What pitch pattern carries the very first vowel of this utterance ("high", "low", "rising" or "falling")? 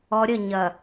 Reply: low